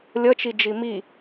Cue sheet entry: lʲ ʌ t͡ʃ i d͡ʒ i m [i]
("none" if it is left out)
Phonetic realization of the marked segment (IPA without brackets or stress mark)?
i